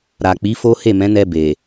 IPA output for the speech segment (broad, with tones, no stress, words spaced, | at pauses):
ɾa˨ k͡pi˨˦fo˦ he˦˨mɛ̃˨˦nɛ˧ be˨